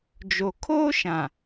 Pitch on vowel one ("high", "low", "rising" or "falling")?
low